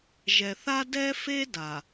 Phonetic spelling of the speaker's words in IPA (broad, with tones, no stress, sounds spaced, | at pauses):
ʒ ɛ˨ θ a˦ d ɛ˦ f e˦ d a˨